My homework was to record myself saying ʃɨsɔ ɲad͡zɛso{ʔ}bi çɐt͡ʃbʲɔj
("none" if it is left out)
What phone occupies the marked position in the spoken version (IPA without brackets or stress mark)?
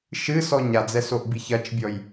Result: ʔ